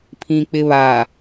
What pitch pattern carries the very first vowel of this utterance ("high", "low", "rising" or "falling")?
low